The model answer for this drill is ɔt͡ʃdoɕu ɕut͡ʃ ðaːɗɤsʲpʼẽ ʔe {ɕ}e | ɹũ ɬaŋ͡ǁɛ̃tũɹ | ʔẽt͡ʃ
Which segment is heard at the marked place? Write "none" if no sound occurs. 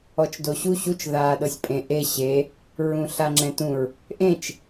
ɕ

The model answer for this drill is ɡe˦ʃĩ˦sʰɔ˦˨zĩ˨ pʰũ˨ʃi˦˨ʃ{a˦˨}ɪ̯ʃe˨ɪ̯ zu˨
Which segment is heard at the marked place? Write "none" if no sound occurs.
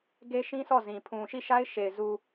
a˦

